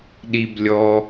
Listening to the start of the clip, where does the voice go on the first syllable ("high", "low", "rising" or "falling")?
high